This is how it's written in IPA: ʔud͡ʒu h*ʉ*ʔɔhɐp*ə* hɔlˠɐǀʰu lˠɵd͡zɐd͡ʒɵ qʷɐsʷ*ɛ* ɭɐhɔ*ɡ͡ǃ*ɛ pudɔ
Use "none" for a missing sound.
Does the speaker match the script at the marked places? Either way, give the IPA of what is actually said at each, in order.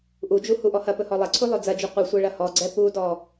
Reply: u, ɵ, ɛ, ɡ͡ǀ

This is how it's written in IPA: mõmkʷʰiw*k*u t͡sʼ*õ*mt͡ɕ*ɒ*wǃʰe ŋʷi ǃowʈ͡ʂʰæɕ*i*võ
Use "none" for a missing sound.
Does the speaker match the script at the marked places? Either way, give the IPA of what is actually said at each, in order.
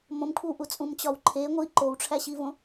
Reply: ʔ, ũ, ɒ, i

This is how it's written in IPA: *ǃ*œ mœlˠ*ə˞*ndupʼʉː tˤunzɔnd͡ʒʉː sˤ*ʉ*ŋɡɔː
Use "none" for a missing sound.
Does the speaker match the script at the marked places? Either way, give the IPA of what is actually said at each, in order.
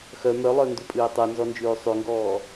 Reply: x, ə˞, ʉ

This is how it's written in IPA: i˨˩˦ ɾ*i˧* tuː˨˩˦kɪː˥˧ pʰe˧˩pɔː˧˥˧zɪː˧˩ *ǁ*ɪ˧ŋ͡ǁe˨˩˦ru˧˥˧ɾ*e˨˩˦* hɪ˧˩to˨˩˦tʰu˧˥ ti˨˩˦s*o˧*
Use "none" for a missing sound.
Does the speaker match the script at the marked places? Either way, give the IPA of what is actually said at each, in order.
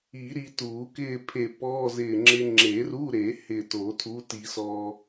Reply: i˧, ŋ͡ǁ, e˨˩˦, ɔ˧

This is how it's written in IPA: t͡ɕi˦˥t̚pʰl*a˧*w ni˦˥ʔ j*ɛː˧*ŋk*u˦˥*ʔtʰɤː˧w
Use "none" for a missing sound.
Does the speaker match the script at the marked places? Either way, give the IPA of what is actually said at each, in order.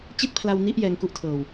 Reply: a˧, ɛː˧, u˦˥

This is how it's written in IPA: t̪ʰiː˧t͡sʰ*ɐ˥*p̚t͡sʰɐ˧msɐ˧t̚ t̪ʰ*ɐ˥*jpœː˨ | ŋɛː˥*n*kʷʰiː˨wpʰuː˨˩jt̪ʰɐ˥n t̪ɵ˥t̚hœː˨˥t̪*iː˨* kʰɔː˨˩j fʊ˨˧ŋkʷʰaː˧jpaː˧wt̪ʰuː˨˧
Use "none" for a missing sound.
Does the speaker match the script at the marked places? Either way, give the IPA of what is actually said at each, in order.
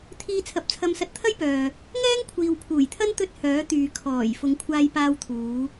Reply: ɐ˨˥, ɐ˥, ŋ, yː˨

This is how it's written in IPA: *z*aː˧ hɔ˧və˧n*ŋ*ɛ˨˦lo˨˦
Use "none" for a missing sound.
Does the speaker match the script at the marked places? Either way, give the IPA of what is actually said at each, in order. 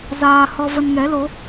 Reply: z, ŋ

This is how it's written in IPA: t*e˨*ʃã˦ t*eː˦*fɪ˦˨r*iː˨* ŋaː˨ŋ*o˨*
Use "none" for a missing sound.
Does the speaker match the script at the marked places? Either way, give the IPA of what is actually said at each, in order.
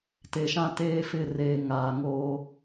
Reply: e˨, eː˦, eː˨, o˦

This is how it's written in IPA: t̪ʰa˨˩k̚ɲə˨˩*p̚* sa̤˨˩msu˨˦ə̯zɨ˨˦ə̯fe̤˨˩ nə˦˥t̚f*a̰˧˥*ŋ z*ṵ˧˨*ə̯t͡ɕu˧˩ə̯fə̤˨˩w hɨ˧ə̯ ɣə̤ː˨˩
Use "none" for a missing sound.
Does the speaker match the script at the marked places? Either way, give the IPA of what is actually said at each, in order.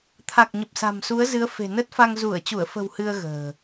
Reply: p̚, a˧, u˧˩

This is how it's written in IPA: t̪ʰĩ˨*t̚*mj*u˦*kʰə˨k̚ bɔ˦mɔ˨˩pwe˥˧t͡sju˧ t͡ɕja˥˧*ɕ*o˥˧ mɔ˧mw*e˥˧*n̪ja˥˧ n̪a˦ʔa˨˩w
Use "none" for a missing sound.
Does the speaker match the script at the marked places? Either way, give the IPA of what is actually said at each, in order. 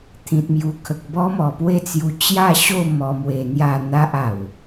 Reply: t̚, u˨˩, ɕ, e˧

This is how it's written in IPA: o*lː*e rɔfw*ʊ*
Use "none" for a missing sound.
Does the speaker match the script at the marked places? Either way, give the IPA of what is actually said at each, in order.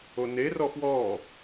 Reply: n, ɔ

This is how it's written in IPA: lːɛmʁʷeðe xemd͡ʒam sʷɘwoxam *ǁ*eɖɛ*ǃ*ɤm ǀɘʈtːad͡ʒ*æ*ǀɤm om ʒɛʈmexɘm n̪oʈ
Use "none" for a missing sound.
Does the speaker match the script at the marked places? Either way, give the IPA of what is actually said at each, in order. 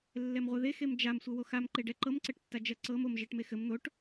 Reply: ǃ, ǃ, ɜ

